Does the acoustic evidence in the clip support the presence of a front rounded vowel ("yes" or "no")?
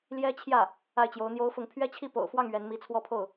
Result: no